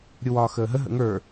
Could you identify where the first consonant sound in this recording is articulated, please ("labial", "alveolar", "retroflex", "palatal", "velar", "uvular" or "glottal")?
alveolar